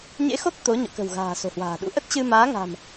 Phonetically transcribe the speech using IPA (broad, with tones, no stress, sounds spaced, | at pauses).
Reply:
ɲ ḛ˧˥ x o˦˥ k̚ t̪ o˨˦ ɲ ɔ̰˧˨ k ə̤˨˩ w ɣ a̤ː˨˩ s o̤˨˩ h w a̤ː˨˩ ɗ ṵ˧˥ ʔ ə˦˥ t̚ t͡ɕ ɨ˧ m aː˨˦ ŋ a̤˨˩ m